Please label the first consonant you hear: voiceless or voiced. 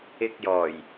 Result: voiceless